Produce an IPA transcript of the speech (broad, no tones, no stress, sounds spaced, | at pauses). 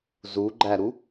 z u ɡ͡ǃ æ ɾ u